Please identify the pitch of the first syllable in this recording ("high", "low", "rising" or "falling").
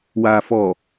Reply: low